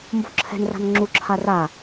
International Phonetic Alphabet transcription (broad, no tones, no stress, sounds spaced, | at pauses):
m b o̤ ǁʰ ɛ̤ n r a̤ n ŋ͡ǁ u ǁʰ a r a